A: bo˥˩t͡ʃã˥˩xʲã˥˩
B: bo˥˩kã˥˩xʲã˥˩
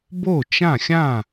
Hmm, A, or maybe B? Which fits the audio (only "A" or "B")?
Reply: A